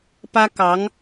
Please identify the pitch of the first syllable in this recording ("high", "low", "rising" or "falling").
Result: high